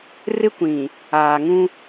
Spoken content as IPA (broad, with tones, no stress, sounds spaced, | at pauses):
r ɪ˦ kʷ ĩ˨ | aː˨ ŋ ũ˦